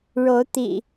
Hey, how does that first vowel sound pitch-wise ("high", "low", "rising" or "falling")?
rising